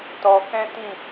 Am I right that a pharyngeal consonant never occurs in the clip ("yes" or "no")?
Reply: yes